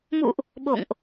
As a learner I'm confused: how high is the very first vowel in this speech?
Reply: high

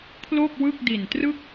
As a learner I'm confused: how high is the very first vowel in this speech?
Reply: mid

